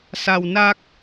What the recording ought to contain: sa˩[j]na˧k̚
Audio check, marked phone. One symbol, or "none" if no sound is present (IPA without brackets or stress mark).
w